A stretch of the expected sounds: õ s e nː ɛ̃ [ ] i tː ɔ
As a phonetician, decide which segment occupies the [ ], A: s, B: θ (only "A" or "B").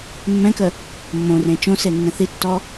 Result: B